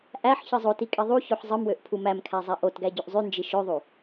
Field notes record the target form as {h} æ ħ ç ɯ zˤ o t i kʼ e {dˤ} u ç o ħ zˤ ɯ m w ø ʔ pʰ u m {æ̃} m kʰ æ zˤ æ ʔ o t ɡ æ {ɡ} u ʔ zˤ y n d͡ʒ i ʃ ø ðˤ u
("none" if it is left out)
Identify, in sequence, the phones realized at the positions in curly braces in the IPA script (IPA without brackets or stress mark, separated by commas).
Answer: ʔ, ðˤ, æ, ɟ